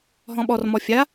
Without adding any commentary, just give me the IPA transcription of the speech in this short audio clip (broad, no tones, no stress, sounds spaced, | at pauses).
ɦ ɔ̃ ɓ ɔ r m ɔ fʲ a